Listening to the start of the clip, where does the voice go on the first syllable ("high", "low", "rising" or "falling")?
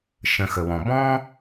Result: low